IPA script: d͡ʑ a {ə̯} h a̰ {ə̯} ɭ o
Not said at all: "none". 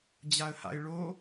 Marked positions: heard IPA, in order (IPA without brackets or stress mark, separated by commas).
ə̯, ɪ̯